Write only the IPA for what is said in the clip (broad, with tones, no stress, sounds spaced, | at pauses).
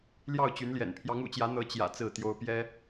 l j ɑ˥˨ ʊ̯ t͡ɕ y˨˦ n l j ɛ̰˨˩ n pʰ j ɑ˨˦ ŋ ṵ˨˩ t͡ɕ j ä˨˦ n̪ ɤ˨˦ t͡ɕ j ä̰˨˩ t͡s ɹ̩˥˨ t̪ j o˦ ʊ̯ p j ɛ˦